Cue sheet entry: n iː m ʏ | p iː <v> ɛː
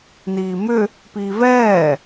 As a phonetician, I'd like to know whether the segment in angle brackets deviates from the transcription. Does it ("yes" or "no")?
no